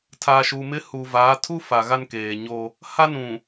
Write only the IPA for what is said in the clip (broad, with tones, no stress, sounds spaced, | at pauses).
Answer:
tʰ aː˨ ʃ u˨ m ɪ˦ h u˨ v aː˨˦ tʰ u˦ f a˨ ɣ a˦ n k eː˨ ɲ o˦ | h a˦ n ũ˨